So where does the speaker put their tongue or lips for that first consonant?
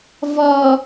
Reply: lips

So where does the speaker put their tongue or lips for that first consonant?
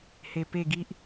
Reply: throat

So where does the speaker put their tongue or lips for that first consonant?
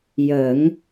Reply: palate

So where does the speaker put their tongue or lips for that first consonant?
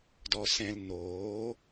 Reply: tongue tip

